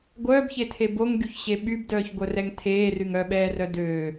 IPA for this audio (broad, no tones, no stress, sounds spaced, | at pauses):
ɡʷ œː b ç e tʰ e b o ŋ ɡ y ç ɕ e ɓ y b d œː ç ɡʷ œ r ɛ ŋ tʰ eː r y ŋ œ ɓ ɛː r œ d ø